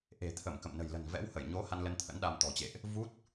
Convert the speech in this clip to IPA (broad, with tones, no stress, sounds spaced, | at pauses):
ʔ e̤˨˩ t̪ʰ ə˧˩ m k ə̰˧˨ m n ə̤˨˩ j l ə̤˨˩ n v ɛ̰˧˥ w h ə˧˩ j ɲ o˨˦ h a˧ n l ə˧ n t̪ʰ ə̰˧˥ n ɗ a˧ m t̪ ɔ̤˨˩ t͡ɕ ḛ˧˨ ʔ | v u˦˥ t̚